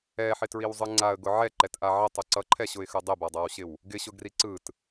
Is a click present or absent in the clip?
present